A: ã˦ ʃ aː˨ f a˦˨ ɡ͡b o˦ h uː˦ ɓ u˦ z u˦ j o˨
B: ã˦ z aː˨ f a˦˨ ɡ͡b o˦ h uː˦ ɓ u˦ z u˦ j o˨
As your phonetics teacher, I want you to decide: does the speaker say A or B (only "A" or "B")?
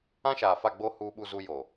A